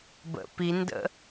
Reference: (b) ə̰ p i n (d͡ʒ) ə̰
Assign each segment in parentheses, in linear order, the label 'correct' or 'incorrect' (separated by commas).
correct, incorrect